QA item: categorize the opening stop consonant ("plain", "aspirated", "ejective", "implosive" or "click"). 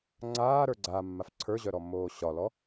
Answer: click